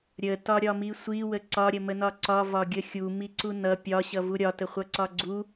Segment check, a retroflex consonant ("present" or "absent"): absent